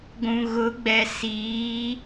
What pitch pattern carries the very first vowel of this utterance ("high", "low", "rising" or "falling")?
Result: low